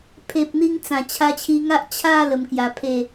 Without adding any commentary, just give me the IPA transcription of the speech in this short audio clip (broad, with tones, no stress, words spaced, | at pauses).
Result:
pʰe˨p̚n̪i˧ŋ t͡sã˨˩ t͡ɕʰa˧t͡ɕʰi˧ŋa˦ʔ t͡ɕʰa˥˧ lə˧mkja˧pʰe˥˧